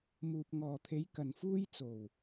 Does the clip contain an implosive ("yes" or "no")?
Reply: no